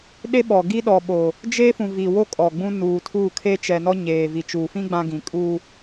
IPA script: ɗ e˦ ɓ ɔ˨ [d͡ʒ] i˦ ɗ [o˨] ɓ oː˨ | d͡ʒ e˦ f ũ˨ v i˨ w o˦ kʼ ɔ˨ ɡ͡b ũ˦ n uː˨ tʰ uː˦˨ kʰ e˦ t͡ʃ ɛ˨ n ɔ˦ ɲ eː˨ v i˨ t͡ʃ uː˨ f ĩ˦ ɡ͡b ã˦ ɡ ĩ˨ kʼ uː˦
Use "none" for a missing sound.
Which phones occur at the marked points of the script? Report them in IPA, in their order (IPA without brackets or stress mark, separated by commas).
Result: ɡ, ɔ˨